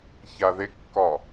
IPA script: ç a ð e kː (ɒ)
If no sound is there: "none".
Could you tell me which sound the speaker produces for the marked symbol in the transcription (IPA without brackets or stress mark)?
ɒ